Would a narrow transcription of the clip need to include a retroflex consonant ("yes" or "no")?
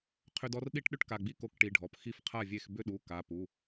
yes